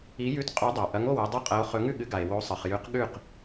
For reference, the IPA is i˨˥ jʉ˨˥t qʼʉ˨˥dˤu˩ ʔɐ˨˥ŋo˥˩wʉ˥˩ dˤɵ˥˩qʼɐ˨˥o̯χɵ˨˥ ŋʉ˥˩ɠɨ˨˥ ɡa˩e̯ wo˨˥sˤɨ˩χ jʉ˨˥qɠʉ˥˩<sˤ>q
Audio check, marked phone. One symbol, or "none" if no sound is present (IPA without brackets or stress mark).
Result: none